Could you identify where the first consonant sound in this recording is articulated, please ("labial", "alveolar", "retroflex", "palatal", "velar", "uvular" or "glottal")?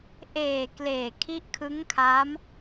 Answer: glottal